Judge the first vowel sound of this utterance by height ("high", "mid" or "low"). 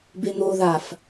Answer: mid